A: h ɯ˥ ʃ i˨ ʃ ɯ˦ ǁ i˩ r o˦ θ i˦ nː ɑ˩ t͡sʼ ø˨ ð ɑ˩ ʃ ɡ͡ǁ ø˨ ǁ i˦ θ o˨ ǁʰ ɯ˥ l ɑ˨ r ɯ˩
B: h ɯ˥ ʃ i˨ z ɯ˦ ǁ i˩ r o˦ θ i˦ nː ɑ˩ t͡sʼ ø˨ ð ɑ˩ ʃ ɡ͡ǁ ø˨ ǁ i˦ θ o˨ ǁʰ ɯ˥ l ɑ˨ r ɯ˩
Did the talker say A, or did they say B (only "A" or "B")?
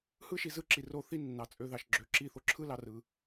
B